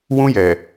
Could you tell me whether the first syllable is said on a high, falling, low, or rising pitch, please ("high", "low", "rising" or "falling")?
high